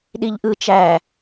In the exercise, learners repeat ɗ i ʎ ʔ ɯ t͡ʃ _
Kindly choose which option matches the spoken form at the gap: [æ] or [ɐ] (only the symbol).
æ